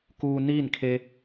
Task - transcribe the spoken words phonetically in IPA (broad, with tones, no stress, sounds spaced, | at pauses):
k uː˧ n iː˥˨ n kʰ e˧